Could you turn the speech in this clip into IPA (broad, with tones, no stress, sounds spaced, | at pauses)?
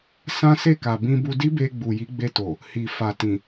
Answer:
s ã˦ s e˦˨ k a˨ b ĩ˧ b u˧ d i˦ b e˧ ɡ͡b u˨ j i˨˦ ɡ͡b e˧ t o˨ | h i˨ f a˨ t ĩ˨